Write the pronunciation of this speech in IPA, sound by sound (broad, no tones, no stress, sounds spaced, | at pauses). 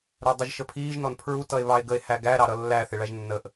ɾ ə˞ dˤ ʊ ʒ ʃ ə pʰ iː ʒ n ɔ n pʰ ɹ u t ʌ e̯ β ɑ e̯ ɡ ə e̯ h æ ɡ æ ɾ ɑ ɾ ʌ lː æ θ ɪ ɭ æ ʒ nː ə ʔ